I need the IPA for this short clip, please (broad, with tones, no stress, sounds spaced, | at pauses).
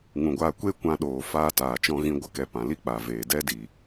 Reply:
ŋ ũ˨ ɡʷ aː˧ kʷ e˦ kʷ ã˧ ɗ oː˨ f aː˦ t aː˨ t͡ʃ ɔ̃˦ ɣ ĩ˦ ɡʷ ə˦ k ɛ˧ p ã˨ l i˦ k͡p a˨ v eː˨ d ɛ˦ d iː˨